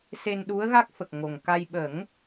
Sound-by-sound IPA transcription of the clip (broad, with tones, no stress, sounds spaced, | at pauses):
s e˧ n ɗ u˧˥ ə̯ ɣ a˦˥ k̚ f ə˨˩ k̚ ŋ o˨˩ ŋ k a˧ j ɓ ə˨˩˦ ŋ